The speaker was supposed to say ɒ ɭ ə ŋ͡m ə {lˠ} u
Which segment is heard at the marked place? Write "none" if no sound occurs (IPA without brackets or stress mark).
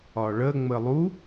lˠ